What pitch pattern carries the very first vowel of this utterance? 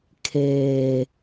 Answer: low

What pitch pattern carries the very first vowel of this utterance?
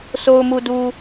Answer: low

